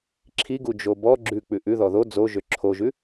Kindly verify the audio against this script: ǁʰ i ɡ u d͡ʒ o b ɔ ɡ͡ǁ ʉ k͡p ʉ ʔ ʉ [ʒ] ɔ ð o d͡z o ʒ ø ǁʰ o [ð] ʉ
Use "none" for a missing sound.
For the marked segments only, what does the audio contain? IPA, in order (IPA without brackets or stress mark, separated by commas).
ð, ʒ